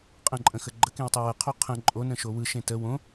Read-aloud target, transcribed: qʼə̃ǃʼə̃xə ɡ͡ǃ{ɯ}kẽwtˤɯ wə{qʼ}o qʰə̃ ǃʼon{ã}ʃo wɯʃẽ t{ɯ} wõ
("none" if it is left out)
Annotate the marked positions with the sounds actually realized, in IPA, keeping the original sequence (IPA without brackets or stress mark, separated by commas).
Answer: ə, qʰ, ə̃, ə